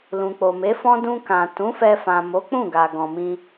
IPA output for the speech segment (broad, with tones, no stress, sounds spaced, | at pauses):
l ũ˨ k͡p o˨ m e˨˦ f ɔ̃˦ d ũ˧ k ã˨ t ũ˨˦ f ɛ˧ f ã˨ m o˨˦ k͡p ũ˦˨ ɡ a˨ ɡ ɔ̃˨ m ĩ˧